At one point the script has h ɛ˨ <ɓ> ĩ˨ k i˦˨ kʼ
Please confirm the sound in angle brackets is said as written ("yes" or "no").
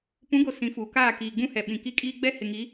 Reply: yes